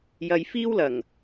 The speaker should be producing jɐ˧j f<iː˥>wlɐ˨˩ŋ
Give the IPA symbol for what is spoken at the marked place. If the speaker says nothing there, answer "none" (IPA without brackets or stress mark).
iː˥